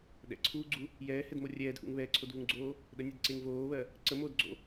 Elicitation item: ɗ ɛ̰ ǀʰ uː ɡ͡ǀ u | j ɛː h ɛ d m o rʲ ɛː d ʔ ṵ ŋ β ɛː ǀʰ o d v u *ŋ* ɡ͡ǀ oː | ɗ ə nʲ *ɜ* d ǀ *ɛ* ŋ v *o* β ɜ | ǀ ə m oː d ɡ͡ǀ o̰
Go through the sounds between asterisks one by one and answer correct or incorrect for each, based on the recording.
correct, incorrect: ɛ, incorrect: e, incorrect: oː

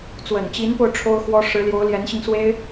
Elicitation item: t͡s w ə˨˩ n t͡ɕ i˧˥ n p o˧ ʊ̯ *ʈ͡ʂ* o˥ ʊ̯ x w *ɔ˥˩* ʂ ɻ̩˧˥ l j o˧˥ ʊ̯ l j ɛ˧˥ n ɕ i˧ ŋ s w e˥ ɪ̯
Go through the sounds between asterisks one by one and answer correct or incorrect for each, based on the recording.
incorrect: ʈ͡ʂʰ, incorrect: ɔ˥

